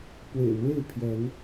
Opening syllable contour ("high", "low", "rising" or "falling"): low